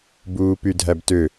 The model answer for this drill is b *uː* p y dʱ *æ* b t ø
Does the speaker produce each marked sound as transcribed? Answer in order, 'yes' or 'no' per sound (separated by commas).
yes, yes